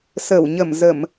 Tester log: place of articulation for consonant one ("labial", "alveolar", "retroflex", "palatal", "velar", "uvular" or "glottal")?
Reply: alveolar